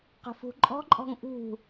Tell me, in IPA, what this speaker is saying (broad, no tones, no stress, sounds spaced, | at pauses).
q ə̤ f ṳ ǃʼ ɔ̤ ǃʼ ɔ̤ ŋ ʔ ṳ